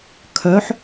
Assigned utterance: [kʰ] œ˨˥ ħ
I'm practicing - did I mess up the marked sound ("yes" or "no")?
no